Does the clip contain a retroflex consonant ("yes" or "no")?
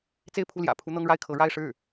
yes